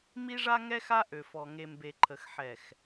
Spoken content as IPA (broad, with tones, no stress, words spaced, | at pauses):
mi˦ʐa˦ŋɛ˦ xa˦ʔø˨fɔ˨ ŋe˨mbe˨ǃʰə˨x ħɛ˨x